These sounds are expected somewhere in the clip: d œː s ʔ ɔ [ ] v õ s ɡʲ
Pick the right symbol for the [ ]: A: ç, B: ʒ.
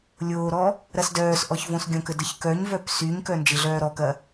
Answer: A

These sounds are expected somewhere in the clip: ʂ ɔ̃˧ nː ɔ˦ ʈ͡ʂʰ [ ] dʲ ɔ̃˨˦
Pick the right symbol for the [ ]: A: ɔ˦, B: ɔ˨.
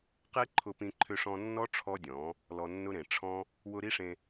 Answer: A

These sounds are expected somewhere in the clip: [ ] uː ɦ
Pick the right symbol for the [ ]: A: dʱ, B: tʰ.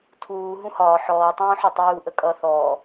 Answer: B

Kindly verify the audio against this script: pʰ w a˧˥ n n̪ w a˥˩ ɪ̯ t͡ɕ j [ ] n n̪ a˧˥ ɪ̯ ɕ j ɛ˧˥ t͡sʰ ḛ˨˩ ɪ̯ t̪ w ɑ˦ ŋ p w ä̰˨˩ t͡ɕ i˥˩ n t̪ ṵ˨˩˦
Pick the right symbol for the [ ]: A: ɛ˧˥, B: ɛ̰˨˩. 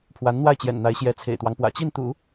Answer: B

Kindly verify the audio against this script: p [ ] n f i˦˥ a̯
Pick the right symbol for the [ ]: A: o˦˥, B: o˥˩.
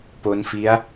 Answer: A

